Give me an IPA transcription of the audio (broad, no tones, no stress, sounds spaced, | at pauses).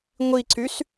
ŋʷ i ǀ y s